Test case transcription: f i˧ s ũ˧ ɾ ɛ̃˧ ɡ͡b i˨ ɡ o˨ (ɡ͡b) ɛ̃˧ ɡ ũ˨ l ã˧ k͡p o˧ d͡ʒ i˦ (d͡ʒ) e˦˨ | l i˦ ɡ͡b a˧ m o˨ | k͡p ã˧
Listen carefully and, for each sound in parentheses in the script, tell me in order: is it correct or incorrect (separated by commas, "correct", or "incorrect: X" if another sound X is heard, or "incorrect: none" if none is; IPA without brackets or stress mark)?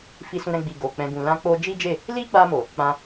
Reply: incorrect: k͡p, correct